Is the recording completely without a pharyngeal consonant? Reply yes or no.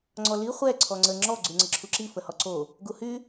yes